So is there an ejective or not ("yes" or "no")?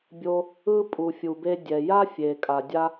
yes